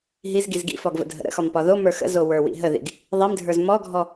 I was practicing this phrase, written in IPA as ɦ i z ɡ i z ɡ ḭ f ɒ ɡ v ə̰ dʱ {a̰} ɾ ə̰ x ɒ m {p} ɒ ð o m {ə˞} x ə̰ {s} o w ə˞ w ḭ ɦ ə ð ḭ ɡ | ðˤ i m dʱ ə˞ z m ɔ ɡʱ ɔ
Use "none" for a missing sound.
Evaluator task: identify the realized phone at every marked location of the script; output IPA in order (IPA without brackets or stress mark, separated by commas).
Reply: ə̰, p, ə˞, z